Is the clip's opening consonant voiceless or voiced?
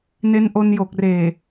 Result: voiced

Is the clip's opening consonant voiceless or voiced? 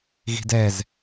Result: voiced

